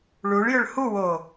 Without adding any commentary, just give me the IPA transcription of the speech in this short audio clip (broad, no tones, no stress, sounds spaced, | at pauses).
ɭ u ɭ j ʏ ɭ h u w o